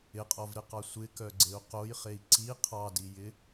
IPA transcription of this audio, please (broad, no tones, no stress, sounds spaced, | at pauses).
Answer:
ɪ qʼ ɔ v ɾ ɪ q ɑ sʷ ɪ k œ ɡ͡ǀ e u̯ q o j χ e i̯ ǀ i qʰ ɑ d i j ɪ